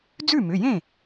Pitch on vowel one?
falling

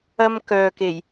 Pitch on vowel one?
high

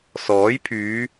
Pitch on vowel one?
rising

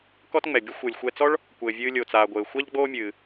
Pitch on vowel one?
high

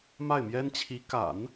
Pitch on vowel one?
falling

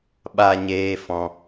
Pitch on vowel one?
high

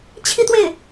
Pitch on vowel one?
falling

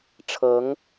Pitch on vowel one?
rising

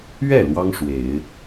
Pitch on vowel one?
falling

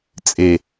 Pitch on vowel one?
low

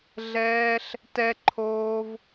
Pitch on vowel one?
high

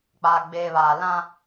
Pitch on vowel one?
low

